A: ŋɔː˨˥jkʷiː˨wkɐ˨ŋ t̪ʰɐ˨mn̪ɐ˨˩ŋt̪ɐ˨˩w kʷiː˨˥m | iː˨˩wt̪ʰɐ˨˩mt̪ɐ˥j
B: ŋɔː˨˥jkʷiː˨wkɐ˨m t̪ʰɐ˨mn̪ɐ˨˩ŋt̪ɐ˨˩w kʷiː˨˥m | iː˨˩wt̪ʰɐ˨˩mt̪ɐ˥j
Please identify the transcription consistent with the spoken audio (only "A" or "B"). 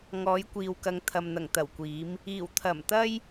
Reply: A